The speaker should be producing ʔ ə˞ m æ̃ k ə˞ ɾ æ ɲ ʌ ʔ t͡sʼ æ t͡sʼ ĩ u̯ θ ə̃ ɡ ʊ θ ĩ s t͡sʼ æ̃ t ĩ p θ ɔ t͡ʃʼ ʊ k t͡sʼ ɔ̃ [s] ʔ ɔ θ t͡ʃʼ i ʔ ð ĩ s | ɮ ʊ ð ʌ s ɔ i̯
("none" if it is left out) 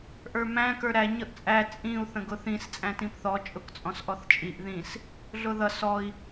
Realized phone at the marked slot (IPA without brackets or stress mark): s